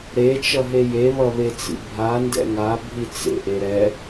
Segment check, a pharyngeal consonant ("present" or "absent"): absent